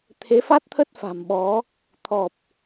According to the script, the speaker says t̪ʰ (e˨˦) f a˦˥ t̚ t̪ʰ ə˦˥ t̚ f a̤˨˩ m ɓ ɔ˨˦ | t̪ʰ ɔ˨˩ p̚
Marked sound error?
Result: no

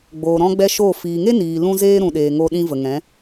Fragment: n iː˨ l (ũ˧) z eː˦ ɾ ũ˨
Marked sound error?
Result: yes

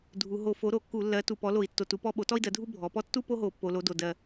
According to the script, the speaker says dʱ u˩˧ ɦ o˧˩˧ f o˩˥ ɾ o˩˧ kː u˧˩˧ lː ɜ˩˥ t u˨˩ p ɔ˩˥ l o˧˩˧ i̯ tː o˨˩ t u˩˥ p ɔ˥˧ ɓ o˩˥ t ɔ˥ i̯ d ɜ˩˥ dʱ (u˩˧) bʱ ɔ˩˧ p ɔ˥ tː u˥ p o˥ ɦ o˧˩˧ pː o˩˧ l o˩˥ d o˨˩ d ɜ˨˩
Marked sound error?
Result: yes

